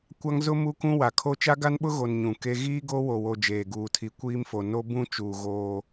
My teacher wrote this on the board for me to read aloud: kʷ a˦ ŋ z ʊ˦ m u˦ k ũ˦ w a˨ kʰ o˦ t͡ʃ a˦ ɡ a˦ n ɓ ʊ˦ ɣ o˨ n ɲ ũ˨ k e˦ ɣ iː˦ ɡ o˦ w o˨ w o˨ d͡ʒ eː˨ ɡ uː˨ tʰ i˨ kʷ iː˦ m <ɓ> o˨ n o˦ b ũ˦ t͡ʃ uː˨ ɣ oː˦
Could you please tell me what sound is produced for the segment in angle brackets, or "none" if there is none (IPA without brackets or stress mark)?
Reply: f